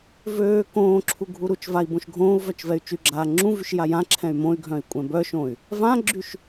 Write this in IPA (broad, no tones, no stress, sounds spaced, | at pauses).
v øː k õː ǁʰ u ɡʱ u ɾ u t͡ʃ v a i̯ b õ ʃ ɡʱ õː u̯ v œ t͡ʃ v ɛ y̯ t͡ʃ y ɡ͡ǁ aː ŋ͡ǁ ũ v y ʃ j a j ã ǁʰ ɛ̃ y̯ m õ y̯ ɡʱ œ̃ i̯ kʷʼ ɛ̃ b œ ʃ õ y̯ | v ã ɡ͡ǁ y ʃ